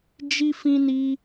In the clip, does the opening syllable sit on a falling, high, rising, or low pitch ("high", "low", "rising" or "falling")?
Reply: high